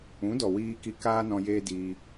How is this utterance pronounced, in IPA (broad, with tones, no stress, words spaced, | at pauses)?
ũ˨˦dɔ˨ wiː˧ki˧ kaː˦nɔ̃˧ jeː˦diː˧